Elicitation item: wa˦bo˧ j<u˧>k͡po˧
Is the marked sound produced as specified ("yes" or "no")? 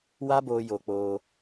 no